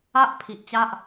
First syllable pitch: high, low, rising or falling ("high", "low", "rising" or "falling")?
high